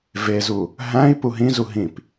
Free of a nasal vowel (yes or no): no